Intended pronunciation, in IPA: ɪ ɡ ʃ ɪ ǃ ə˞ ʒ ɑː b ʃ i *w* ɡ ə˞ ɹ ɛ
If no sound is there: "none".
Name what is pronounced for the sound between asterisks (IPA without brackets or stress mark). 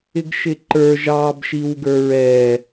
w